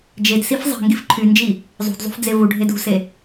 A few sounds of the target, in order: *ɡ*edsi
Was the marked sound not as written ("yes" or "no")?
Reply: yes